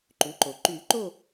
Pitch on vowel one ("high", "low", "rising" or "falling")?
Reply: rising